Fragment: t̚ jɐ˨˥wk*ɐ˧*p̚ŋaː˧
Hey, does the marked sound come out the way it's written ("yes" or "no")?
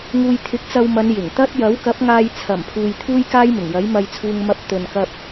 no